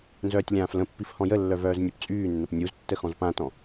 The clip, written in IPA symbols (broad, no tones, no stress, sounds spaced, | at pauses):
n z œː tʲ lʲ ãː f l ə̃ pː i f h ɔ̃ j ə lː œ v œː z nʲ ø p t͡sʼ yː nː ə p nʲ u z tː ə x ɔ̃ z p ã t ɔ̃